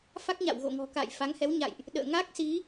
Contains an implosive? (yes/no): yes